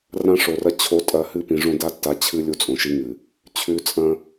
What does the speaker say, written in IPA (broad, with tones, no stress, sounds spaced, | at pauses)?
r ã˦ ʂ o˨ r ɐ˦ t͡ɕʰ o˨˦ tʼ ɐ˨˦ h ɨ˦ p ĩ˨ ʐ õ˦ d a˦ tː a˨˦ t͡ɕʰ ɨ˦ lʲ u˦ t͡sʼ õ˨ ʃ i˦ ŋ ɨ˨ | t͡ɕʰ ʉ˨ t͡sʼ ɐ̃˦